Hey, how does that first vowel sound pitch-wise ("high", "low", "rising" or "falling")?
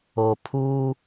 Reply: low